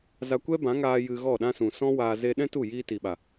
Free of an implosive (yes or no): no